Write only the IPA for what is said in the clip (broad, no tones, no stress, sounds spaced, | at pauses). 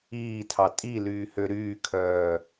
iː tʰ ɑ tʼ i l yː h ø ɾ yː kʰ œː